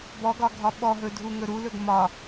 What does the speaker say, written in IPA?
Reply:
b ɔ ɡ ɒ ɡʱ ɒ ɓ ɔ ɦ ɵ dʱ u ŋ ɵ ɾ u l ɵ ɡ m ɒ

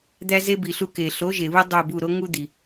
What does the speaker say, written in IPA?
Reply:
d̪ æ˦ z e˦ b i˨ ɬ u˦˨ k e˨ ɬ o˨˥ ʒ e˨ β u˦ dˤ o˦˨ b u˦˨ ɾ o˦ ŋ u˦ d̪ i˨

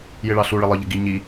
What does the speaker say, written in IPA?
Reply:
j ɪ ɭ ɑ ɬ u ɭ ɪ lˠ ə˞ ʎ ə ɡ i ɲ i

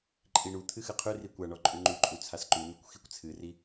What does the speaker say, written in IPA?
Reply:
ǃʼ i ɳ u t̪ʰ ɨ x ɨ qʰ ʉ r i kʷ a ɳ ɔ ǃʼ ʉ ŋ͡ǃ ʉ ǃʼ u t͡sʰ a s ǃ ʉ n̪ ʉ kʷ x i kʷ t͡sʰ ɨ r i

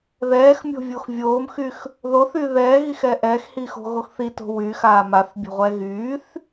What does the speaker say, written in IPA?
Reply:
ð ɛː x mʲ o̤ vʲ o x vʲ oː m x y x | ð o θ y ð ɛː ɣ i x ɛ ʔ ɛː x h i x o̤ ɣ o x θ i t o̤ w yː x aː m a θ bʲ o̤ ʁʷ ɛː ɣ yː θ

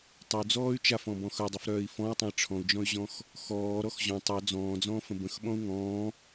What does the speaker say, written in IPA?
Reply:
tˤ ə u̯ d͡z ɔː y̯ t͡ʃ a f ɔ̃ b ɔ̃ x œ dˤ ʉ f ɾ œː i̯ f ɔ̃ u̯ tˤ ə̃ i̯ ʈ͡ʂʰ ɔ̃ u̯ d͡ʒ ɔ̃ y̯ ʑ ɔ̃ x | x ɔː ɾ ɔ x ʑ ɔ̃ tˤ œ d͡z ɔ̃ː d͡z ɔ̃ː f ə̃ b ə̃ x ɓ ɔ̃ u̯ ŋ ɔ̃ː

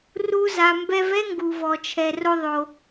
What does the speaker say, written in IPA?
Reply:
r u˦ z a˧ m b ɛ˧ v ɛ˦ ŋ ɡ u˧ v ɔ˧ t͡ʃʰ ɛ˧ r o˦ ðˤ o˧

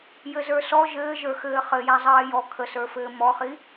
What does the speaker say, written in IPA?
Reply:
j ɘ z ə˞ s ɔ ʒ ɘː ʒ ə˞ x ɘː χ ɘ j æ zˤ ɜː j ɔ kʰ ə s ə˞ f ɘː m ɔ χ i

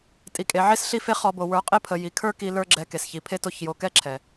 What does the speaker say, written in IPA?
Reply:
tʼ i˨ kʼ e˨ ʕ e˦ s ɬ i˦ f e˦ χ ɔ˧ b o˨ w ə˞˨˦ qʼ e˦ pʰ ə˨ j i˨ kʰ ə˞˦ k i˧ l ə˞˦ ɡ͡ǁ ɛ˧ k e˨ s ç i˨ pʰ e˦ t o˦˨ ç j o˧ k ɛ˦ ǁʰ ɛ˨

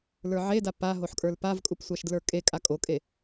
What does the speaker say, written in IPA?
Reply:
l ə˞ ʕ e d a p a ɦ o ħ kʼ ə˞ l p a v kʼ u p sʷ a ʃ d l ə˞ kʼ e kʼ a kʼ o kʼ e

